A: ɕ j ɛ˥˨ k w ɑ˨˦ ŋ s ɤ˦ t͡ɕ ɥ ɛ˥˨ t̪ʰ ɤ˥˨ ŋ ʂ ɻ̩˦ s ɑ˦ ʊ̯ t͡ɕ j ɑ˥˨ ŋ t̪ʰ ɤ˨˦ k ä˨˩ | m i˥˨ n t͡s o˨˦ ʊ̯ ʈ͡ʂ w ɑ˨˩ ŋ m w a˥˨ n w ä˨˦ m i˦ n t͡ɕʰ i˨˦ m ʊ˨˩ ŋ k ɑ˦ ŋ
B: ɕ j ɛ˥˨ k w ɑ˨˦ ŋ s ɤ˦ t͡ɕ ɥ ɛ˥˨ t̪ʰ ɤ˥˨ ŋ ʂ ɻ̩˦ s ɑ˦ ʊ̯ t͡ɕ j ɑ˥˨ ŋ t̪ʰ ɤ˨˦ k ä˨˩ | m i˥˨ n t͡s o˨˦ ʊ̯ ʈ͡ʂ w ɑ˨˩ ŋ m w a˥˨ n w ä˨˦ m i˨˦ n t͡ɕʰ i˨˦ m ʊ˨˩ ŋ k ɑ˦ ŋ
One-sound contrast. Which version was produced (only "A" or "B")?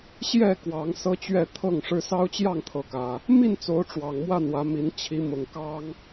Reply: B